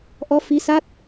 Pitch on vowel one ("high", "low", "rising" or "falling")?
rising